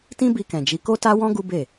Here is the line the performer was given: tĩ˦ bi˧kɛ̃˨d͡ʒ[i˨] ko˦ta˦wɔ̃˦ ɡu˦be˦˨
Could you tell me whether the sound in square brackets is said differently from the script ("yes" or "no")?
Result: yes